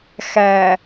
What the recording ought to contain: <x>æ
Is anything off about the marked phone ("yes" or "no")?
no